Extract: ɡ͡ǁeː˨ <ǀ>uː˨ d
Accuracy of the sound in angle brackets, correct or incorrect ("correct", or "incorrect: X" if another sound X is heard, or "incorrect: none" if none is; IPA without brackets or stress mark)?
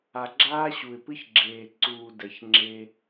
correct